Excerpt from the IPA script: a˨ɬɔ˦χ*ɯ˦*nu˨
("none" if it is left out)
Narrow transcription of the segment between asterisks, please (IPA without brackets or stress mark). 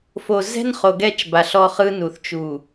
ɯ˦